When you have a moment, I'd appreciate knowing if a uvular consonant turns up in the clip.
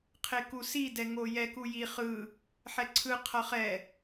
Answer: yes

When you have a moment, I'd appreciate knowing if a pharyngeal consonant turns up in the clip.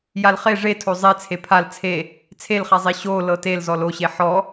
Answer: yes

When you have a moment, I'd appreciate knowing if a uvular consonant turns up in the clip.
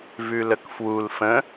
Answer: no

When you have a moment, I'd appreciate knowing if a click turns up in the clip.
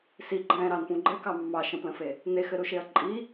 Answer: yes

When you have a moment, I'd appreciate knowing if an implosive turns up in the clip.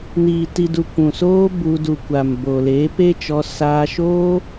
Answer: no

